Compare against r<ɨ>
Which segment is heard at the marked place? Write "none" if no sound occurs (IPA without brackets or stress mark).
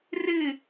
ɨ